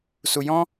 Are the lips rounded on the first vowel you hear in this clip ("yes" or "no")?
yes